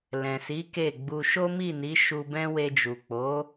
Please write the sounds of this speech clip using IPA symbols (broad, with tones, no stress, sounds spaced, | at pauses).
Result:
l ɛ̃˨ s i˨˦ k e˦˨ ɡ͡b u˧ ʃ o˦ m i˦˨ n i˨˦ ʃ u˧ b ɛ̃˦ w e˧ d͡ʒ u˨ k͡p o˨˦